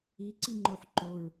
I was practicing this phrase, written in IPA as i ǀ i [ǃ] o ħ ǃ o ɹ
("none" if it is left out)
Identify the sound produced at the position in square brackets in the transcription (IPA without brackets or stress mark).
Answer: ŋ͡ǃ